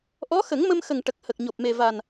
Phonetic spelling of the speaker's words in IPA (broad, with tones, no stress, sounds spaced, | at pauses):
ʔ ɔ˧˥ x ə˨˩˦ ŋ m ə˧ m x ə˨˩ ŋ ʈ ə˨˩ k̚ h ə˨˩ k̚ ɲ o˨˩ p̚ m e˨˩ v a˨˩ n